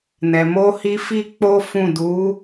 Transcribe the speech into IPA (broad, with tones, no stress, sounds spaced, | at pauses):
n ɛ˨ m o˧ h i˧ f i˦ k͡p o˦ f ũ˦˨ d u˨˦